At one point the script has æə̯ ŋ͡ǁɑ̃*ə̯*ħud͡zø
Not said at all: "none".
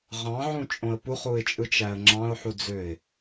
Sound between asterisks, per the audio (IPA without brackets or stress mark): ʊ̯